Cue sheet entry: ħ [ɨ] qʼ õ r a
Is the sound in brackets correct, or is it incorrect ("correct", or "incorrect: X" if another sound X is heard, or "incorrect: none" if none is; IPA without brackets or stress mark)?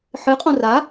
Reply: correct